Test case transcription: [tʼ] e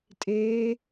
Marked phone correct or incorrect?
correct